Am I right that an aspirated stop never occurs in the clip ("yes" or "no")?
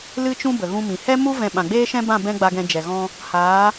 yes